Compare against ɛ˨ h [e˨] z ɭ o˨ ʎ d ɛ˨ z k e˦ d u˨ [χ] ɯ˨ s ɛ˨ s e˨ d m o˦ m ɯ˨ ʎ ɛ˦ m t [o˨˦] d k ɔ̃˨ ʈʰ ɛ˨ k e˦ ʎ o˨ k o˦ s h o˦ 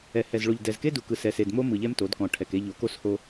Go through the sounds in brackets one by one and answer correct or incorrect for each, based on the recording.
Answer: incorrect, incorrect, correct

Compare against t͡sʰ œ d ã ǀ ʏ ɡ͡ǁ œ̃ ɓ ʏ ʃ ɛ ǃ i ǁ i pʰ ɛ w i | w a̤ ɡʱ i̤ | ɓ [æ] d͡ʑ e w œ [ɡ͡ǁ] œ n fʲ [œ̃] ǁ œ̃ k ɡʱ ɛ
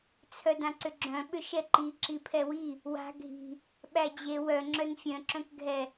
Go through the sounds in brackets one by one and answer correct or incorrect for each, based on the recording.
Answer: correct, incorrect, correct

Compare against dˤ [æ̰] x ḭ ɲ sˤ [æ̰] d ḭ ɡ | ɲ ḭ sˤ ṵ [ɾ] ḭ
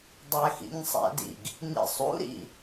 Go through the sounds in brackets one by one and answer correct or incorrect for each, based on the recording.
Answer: incorrect, correct, correct

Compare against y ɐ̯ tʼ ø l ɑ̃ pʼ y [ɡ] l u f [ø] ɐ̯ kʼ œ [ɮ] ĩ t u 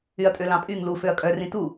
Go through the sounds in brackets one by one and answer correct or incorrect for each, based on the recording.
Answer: incorrect, correct, incorrect

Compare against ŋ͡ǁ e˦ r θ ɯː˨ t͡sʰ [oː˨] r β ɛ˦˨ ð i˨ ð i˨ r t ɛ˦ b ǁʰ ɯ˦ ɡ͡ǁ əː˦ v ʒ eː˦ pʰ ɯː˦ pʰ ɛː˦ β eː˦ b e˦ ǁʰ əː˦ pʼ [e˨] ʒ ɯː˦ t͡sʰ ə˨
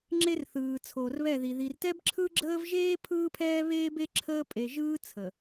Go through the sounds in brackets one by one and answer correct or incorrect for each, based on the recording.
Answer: correct, correct

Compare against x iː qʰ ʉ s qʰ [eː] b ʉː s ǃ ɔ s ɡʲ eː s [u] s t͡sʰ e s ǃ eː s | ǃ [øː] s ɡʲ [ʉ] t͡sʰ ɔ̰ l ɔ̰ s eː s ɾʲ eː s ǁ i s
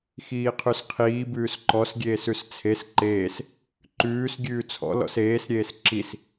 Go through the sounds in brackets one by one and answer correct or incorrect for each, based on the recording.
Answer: incorrect, incorrect, incorrect, incorrect

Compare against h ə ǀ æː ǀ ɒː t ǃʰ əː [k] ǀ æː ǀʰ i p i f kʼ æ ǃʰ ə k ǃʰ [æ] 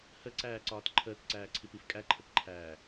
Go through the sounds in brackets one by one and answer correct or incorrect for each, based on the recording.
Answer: correct, incorrect

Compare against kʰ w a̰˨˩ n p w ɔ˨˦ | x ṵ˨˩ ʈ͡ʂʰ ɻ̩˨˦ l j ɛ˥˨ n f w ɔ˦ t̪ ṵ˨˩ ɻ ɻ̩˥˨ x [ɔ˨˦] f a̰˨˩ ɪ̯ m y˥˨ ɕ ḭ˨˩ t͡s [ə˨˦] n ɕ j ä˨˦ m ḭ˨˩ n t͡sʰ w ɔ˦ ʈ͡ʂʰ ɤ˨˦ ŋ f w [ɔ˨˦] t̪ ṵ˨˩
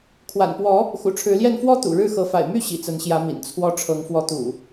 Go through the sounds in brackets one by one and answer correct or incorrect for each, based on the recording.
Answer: incorrect, correct, correct

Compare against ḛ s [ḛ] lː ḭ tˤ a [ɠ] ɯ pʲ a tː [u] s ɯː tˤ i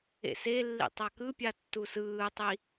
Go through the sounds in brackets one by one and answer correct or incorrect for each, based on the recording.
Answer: incorrect, incorrect, correct

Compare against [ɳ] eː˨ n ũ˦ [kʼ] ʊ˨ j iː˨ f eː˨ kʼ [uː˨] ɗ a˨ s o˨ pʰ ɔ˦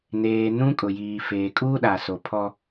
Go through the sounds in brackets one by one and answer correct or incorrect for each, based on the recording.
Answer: incorrect, correct, incorrect

